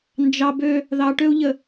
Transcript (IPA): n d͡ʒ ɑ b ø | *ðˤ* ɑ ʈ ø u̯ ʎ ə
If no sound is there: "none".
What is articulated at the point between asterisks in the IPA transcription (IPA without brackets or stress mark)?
ð